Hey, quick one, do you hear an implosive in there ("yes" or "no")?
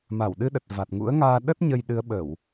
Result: yes